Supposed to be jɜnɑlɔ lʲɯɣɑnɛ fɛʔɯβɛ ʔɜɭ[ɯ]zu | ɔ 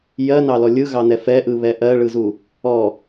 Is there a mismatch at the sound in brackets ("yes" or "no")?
no